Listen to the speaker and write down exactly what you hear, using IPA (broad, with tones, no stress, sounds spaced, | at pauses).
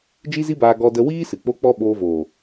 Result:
d͡ʒ i˦ z i˦ b aː˧ ɡ ɔ˧ d ə˧ w iː˦ s ɨ˨ k͡p o˦ k͡p ɔ˦ ɓ oː˧ v oː˨